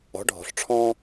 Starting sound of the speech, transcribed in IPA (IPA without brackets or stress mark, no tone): ɔ̤